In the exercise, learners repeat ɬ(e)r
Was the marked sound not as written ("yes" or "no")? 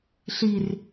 yes